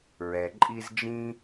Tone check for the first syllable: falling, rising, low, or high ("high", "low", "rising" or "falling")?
low